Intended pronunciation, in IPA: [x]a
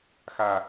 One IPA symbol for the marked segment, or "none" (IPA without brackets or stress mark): x